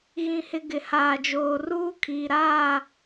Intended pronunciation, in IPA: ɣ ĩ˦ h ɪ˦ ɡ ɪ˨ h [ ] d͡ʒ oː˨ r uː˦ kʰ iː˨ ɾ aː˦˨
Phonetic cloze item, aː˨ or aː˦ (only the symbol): aː˨